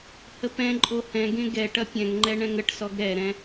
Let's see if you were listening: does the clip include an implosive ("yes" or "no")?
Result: no